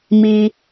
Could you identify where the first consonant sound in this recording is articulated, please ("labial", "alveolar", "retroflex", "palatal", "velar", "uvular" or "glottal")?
labial